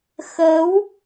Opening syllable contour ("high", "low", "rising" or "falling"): rising